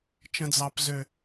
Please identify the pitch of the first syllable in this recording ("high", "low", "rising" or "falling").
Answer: high